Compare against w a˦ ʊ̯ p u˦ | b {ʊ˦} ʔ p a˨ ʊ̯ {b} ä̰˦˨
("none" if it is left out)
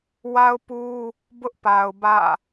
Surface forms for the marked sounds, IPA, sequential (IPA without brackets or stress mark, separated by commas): ʊ˦, b